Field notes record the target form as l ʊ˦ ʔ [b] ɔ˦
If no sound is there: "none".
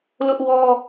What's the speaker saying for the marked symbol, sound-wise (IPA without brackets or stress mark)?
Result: w